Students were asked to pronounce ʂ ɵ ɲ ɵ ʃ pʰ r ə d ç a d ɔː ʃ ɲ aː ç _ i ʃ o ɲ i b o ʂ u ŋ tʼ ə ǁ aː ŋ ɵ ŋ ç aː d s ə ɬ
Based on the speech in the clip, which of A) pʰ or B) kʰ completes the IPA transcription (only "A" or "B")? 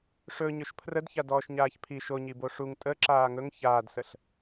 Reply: A